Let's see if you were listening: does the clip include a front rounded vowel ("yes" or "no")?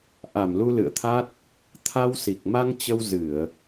no